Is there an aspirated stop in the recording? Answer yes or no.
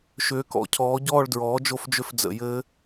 yes